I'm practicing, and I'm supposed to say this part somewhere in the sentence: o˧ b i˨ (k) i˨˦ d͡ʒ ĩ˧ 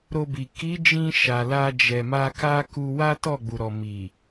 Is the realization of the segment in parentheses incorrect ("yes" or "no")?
no